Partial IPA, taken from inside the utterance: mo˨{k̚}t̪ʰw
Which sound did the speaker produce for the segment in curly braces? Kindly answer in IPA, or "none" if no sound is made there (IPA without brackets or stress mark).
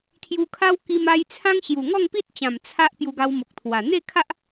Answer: k̚